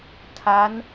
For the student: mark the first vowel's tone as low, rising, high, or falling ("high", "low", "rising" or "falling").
rising